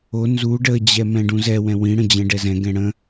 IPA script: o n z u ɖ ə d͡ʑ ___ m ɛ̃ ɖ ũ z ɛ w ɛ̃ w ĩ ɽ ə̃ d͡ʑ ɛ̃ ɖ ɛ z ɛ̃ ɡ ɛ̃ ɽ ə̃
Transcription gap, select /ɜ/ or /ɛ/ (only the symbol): ɛ